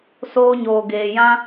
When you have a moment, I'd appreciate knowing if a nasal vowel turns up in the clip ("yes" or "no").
yes